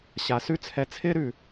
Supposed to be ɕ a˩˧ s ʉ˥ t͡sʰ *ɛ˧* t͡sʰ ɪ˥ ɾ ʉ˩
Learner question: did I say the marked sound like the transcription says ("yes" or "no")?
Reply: yes